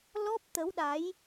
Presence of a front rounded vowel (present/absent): absent